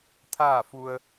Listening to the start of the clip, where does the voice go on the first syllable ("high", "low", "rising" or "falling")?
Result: falling